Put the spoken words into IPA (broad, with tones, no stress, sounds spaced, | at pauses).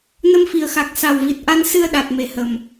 n ə˧ m f i˨˩ ə̯ x a˨˩ k̚ s a˨˩ w v i˨˩ t̚ ʔ a˧ n s ɨ˧ ə̯ ɗ a˨˩ t̚ m e˧˩ h ə˨˩ m